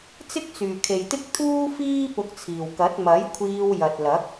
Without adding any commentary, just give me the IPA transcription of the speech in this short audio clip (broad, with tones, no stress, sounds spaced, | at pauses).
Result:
t͡s ɪ˥ k̚ t͡s yː˨ kʰ e˨ j t̪ ɪ˥ k̚ t̪ʰ uː˥ f iː˥ p ʊ˧ k̚ t͡sʰ iː˨ w k ɐ˨˥ t̚ m ɐ˨˥ j kʷʰ iː˧ w j ɐ˨ t̚ l ɐ˨˥ k̚